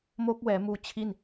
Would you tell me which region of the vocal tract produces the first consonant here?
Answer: lips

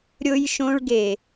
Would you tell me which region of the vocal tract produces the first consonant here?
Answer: tongue tip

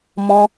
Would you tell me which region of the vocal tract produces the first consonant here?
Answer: lips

